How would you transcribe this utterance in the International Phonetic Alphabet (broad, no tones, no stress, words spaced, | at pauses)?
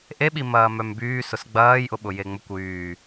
ʔe ɓimɐːmœmbyː sʊsɡ͡bɐːj ʔʊɓʊjeŋ͡mʊkʷ yː